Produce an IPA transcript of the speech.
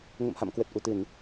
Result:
ŋə̰˧˨mha̰˧˨m kwə˨˩t̚ʔu˧˩t̪ɨ˧˩˨n

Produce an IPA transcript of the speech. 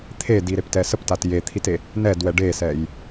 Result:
t̪ʰediɾeptɛ səptat jet̪ʰite | nɛdwɛ ɖesɛj

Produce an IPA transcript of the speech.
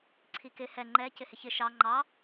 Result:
ǀʰikɪ hɛ ŋ͡ǃɛ cɪhɪçɪ ʃɑ ŋ͡ǃɑ

